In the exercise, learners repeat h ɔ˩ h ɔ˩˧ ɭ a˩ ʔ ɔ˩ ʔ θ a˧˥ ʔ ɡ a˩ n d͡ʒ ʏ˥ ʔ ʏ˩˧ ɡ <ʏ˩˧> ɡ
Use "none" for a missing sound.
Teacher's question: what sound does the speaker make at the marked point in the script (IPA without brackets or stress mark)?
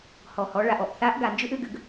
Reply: ʏ˩